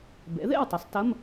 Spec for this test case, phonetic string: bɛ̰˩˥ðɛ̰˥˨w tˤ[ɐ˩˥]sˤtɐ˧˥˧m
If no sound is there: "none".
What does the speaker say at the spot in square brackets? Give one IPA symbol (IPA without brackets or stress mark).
ɐ˩˥